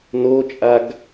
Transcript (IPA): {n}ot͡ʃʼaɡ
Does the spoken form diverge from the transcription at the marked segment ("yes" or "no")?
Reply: no